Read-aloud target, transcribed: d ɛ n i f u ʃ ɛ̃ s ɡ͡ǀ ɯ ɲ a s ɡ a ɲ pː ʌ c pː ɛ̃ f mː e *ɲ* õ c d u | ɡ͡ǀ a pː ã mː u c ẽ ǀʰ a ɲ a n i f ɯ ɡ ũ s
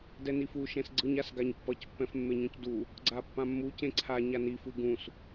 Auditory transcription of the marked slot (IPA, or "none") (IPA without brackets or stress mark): ɲ